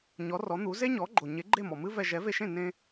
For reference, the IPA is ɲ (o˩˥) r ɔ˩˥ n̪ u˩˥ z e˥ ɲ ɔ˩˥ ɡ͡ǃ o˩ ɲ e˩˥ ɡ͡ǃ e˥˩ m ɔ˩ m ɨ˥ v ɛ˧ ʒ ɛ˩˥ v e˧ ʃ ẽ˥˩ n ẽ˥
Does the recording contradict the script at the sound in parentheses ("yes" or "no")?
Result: yes